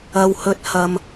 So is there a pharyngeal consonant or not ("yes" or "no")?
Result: no